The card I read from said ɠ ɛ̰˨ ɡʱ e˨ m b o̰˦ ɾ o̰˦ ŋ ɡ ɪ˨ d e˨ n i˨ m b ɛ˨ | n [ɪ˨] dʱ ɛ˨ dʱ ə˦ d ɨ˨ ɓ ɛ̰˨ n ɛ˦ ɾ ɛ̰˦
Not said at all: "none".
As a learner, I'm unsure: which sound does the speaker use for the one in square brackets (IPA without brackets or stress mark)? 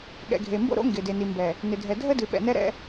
ɪ˨